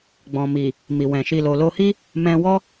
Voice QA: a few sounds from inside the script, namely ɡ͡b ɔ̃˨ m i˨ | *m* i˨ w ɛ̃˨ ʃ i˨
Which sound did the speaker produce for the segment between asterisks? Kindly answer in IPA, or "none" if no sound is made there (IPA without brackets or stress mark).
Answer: m